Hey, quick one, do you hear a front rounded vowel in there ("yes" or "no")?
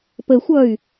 yes